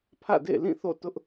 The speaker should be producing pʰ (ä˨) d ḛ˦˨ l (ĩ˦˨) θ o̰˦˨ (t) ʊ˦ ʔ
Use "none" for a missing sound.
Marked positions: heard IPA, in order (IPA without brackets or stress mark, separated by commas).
ä̰˦˨, ĩ˦˨, t